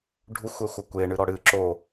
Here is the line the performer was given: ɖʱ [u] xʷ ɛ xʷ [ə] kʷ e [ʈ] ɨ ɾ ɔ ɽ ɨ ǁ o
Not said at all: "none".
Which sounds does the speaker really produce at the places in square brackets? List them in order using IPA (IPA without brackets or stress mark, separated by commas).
u, ɐ, ɳ